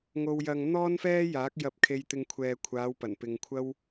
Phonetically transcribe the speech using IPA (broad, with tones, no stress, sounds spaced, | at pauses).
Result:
ŋ o˧ w j ɐ˧ ŋ n̪ ɔː˥ n f ɛː˥ j aː˨˥ k̚ j ɐ˧ p̚ kʰ e˧ j t̪ ɪ˧ ŋ kʷʰ ɛː˨ kʷʰ aː˨˧ w p ɐ˨˩ n p ɪ˨ ŋ kʷʰ ɐ˥ w